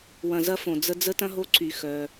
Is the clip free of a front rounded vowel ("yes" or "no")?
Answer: no